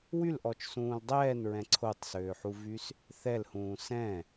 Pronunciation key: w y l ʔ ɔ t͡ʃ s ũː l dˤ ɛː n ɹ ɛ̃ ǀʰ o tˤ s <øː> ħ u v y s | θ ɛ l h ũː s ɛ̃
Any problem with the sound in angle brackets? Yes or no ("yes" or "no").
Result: no